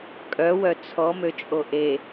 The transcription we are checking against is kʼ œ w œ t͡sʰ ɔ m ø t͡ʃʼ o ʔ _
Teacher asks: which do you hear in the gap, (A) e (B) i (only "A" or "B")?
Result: A